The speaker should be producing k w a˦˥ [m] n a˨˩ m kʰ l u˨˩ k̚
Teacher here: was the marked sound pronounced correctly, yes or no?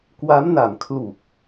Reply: yes